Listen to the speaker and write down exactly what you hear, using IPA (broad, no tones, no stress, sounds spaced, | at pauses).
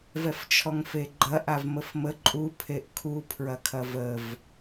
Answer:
v ɛ f t͡ʃʰ ɔ ŋ f e ɡ͡ǃ ɐ ʔ a v m ə f m ə ǃʼ u pʰ e ʔ kʰ u pʰ ɹ ɐ kʰ ɐ v ə v